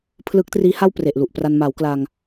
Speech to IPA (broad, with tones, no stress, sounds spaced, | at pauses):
pʰ l ɯ˦˥ k̚ t r iː˦˥ h a˥˩ w p r e˨˩ ʔ l u˨˩ ʔ p r a˧ n m a˩˦ w k l a˧ ŋ